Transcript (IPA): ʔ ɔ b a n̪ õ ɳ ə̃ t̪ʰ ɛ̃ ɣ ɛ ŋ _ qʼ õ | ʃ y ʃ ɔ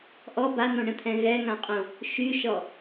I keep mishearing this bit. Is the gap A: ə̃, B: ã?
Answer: B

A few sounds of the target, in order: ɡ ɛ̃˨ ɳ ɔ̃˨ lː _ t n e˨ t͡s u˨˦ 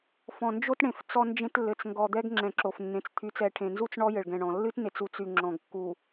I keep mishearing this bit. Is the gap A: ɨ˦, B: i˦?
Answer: A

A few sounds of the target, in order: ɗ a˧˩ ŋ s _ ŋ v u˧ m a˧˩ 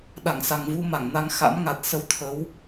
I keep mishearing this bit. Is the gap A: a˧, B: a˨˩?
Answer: B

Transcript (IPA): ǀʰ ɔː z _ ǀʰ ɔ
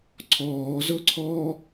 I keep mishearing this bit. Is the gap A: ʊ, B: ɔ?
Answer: A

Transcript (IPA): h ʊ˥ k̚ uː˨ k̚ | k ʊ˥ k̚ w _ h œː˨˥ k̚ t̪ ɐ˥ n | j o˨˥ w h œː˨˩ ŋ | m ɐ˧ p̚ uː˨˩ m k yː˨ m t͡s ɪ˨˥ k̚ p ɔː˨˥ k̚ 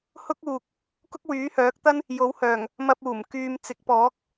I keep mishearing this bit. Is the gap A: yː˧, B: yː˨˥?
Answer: B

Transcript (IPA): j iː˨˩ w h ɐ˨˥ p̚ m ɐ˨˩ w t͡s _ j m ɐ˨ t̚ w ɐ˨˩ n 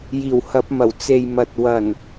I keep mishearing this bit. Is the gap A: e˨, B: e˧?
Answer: A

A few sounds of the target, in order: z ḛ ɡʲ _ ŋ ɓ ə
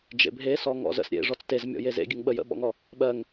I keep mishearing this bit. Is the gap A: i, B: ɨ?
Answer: B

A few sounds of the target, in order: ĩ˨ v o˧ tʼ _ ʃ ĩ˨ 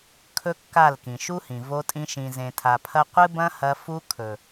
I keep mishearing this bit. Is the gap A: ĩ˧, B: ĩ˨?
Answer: A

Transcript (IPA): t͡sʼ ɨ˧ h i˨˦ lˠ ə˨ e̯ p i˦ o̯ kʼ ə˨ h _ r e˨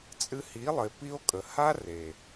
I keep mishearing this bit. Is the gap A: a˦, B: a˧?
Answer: A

